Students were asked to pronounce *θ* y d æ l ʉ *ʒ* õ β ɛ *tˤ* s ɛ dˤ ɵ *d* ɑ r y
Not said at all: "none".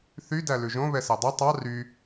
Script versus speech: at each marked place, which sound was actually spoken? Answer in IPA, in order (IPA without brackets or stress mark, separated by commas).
θ, ʒ, none, tˤ